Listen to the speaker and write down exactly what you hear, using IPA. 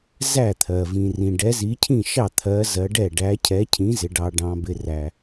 zæ˥˩t̪ʰɜ˩ vĩ˩rĩ˩ ɖɛ˨˦zi˨˦cʰĩ˥˩ ʃɑ˥˩t̪ʰɜ˨˦ zɜ˨˦ɖɛ˥˩ ɖæ˨˦cʰɛ˨˦cʰĩ˨˦ zɪ˨˦ɖɑ˨˦ ɖɑ̃˨˦bɪ˨˦ræ˩

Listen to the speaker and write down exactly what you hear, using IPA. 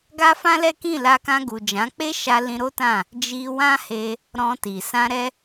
ɡa˦fã˦lɛ˦kĩ˦˨ la˧kã˧ɡu˨ d͡ʒã˨˦k͡pe˦ʃa˧ lĩ˧ɾo˦tã˦˨ | d͡ʒi˧wã˦ he˧ | ɾɔ̃˧ti˨ sã˧ɾɛ˦

